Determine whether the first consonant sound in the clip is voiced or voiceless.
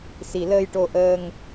voiceless